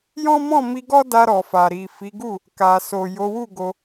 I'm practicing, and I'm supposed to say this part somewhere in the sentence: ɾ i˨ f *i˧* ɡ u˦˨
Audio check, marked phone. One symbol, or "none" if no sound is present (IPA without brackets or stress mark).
i˨˦